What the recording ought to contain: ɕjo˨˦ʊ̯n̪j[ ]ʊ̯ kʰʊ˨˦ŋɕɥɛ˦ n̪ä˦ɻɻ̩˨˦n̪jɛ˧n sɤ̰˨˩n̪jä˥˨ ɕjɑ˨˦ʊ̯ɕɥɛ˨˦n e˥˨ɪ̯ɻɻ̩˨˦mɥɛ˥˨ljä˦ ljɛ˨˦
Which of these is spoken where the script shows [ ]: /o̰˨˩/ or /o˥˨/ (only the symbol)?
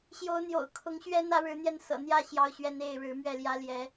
o̰˨˩